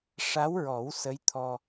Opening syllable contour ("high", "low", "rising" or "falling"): rising